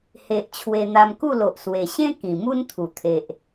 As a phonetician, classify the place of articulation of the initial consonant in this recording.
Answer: glottal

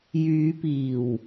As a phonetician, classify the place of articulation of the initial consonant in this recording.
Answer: palatal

